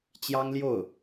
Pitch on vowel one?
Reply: high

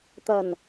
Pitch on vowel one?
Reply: low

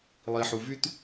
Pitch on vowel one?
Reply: low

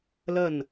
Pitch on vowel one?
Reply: falling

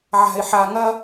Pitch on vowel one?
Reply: low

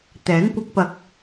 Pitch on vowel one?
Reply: rising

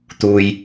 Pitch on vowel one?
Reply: low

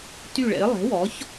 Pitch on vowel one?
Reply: falling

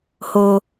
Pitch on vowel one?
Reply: low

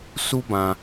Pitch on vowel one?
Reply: high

